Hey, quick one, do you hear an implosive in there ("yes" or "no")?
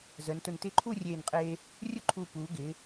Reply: no